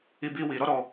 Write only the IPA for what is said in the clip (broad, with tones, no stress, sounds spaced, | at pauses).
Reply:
i˦ b i˦ w i˧ ɾ ɔ˦ ɾ ɔ˧